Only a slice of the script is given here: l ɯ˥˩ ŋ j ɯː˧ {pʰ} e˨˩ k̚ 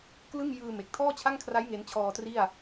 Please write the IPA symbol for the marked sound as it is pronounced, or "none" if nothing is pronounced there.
m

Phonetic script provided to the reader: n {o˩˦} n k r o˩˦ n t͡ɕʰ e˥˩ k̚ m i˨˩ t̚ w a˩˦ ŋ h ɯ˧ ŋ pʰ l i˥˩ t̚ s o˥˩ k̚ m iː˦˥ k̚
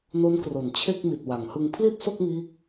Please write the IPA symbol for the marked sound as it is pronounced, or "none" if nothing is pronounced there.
o˦˥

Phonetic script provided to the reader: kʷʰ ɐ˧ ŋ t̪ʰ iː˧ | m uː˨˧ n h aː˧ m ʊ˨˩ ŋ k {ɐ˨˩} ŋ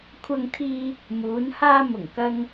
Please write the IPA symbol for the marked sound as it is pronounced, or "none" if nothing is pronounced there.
ɐ˧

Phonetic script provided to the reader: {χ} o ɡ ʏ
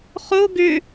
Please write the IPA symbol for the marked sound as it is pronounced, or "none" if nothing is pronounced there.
χ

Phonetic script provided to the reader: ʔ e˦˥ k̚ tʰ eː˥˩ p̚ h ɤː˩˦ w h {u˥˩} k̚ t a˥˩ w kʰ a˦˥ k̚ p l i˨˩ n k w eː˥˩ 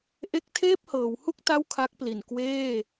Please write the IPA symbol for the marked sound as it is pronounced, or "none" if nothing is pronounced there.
u˥˩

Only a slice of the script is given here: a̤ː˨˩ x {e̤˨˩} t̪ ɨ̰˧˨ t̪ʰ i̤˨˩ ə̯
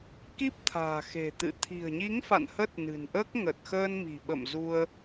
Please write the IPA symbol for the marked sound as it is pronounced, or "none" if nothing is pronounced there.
e̤˨˩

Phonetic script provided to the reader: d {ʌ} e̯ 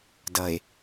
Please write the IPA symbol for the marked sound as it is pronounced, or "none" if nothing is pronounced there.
ʌ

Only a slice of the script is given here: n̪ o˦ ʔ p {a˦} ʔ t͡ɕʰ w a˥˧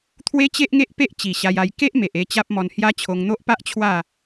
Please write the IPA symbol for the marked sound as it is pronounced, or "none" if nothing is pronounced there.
a˦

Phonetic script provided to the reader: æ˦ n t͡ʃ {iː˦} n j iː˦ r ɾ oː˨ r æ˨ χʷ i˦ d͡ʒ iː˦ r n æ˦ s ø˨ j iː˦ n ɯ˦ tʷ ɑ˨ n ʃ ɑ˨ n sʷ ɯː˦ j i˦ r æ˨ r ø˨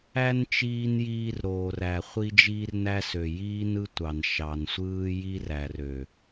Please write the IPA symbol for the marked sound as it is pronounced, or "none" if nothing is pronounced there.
iː˦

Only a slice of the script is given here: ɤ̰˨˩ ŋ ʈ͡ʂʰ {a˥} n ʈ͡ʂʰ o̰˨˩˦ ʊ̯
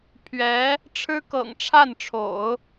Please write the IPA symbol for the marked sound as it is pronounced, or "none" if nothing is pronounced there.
a˥˩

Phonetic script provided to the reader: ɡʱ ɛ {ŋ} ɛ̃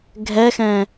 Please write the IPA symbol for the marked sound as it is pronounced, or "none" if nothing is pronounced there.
x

